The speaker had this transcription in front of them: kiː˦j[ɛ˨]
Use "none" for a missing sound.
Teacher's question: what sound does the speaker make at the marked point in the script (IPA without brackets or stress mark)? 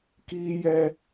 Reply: ɛ˦